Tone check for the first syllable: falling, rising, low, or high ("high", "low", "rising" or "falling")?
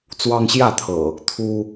high